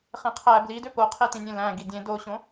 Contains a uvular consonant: yes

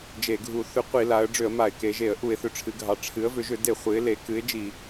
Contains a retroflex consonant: yes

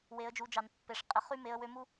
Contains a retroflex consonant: yes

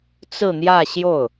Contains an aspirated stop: no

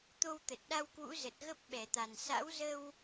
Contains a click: no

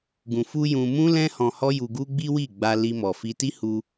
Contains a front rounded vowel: no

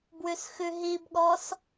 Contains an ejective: no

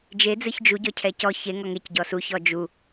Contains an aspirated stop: yes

